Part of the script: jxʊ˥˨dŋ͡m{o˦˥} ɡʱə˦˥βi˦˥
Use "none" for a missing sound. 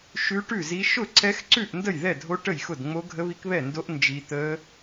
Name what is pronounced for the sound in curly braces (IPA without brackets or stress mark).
o˦˥